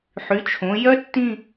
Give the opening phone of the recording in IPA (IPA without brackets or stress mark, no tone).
ħ